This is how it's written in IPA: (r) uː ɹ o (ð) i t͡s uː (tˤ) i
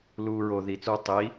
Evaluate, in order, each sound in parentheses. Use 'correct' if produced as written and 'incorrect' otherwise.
incorrect: l, correct, correct

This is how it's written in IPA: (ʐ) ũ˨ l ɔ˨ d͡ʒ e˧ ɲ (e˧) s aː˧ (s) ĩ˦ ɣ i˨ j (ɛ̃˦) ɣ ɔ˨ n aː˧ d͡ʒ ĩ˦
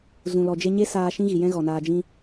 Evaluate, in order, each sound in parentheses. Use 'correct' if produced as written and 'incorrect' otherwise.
incorrect: z, incorrect: e˦, incorrect: ʃ, correct

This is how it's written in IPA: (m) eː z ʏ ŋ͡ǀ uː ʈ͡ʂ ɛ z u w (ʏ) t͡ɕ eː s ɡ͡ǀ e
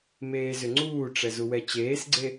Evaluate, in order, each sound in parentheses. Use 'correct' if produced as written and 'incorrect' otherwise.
correct, incorrect: ɛ

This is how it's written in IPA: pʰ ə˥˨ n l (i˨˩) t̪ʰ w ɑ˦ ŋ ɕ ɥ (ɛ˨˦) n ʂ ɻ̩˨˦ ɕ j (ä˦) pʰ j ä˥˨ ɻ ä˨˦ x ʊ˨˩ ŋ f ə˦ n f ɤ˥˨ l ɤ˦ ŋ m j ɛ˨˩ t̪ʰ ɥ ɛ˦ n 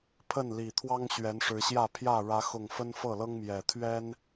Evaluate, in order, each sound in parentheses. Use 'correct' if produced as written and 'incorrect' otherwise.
correct, correct, incorrect: ä˥˨

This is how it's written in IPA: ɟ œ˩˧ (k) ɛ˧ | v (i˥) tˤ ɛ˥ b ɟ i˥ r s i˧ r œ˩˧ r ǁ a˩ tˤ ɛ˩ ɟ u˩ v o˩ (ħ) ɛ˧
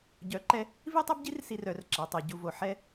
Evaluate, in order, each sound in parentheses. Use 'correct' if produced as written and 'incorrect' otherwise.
incorrect: ǃ, correct, correct

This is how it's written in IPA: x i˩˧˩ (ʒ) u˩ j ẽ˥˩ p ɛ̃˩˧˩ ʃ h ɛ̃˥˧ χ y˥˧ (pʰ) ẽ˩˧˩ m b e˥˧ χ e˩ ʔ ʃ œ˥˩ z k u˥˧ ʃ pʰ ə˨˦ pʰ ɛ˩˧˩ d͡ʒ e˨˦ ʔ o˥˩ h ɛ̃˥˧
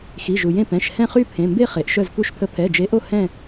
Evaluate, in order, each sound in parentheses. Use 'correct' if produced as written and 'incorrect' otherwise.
correct, correct

